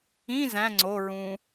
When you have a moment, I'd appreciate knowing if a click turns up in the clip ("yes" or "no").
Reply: yes